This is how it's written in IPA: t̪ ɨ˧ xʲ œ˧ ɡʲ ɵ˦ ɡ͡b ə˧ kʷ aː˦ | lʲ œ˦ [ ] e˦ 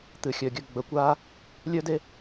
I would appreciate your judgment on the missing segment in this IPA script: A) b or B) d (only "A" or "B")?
B